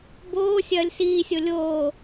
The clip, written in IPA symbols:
b oː sʲ ɐː lʲ s iː sʲ o lʲ oː

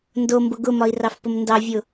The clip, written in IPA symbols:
n d o m b ʊ ɡ ʊ m ɒ i̯ r ɑ f p ʊ m n d ɑ vʲ ʊ

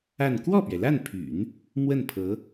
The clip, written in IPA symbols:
a˥˧ n k w ɔ˥˩ p ɥ ɛ˩ l a˥˩ n pʰ y̰˨˩˦ n | m w ə˥˩ n pʰ ɤ˧˥

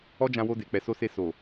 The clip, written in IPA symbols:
ɔ˦ d͡ʒ ã˧ w o˧ d e˨ k͡p ɛ˨ s o˧ s e˧ s o˨

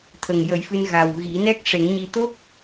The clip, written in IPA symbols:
t̪ʰ ə˨˩ ŋ j ə˨˩˦ j f ɨ˧ n ɣ a˨˩ w ɣ i˨˩˦ n ɛ˦˥ k̚ ʂ e˨˩˦ ŋ ɲ i˧ t̪ o˦˥ k̚

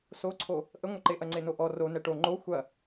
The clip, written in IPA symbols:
s o ǀʰ o | ʔ ə ŋʷ ə ǃ e ʔ ɐ ŋ͡ǀ e n o ʔ ɔ r o n ɛ ʈ o ŋ͡ǃ o xʷ ɐ

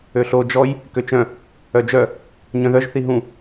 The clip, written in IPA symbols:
ø ɬ o d͡ʒ ɔ j | k ø t͡ʃ œ̃ | œ d͡ʒ œ | ɲ œ̃ ð œ ʒ θ i ɦ ũ

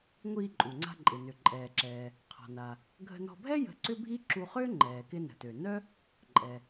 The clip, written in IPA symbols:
ŋʷ iː˧ ǃʼ u˩ ŋ͡ǀ a̤˧ ǃʼ ɪ˩ n ʏ˩ ǃʼ ɛː˩ ǁ ɛː˩ | qʰ ɔ̤˩ n a˩ | ɡʱ ə̤˧ n ɔ̤˧ bʱ ɛ˥ j ə̤˧ ǀ ʏ˥ bʱ i˥ ǁ u˧ χ ʏː˥ ŋ͡ǃ ɛː˩ k ɪ˧ n ə̤˩ t ø˩ n œ˥ | ǃʼ ɛ˩

